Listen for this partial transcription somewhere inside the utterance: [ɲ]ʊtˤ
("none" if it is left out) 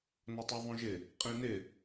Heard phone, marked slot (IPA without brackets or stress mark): n